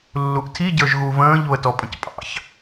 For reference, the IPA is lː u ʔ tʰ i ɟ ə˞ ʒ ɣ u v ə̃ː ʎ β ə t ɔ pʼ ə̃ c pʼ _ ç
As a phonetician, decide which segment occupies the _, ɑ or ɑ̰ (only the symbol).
ɑ̰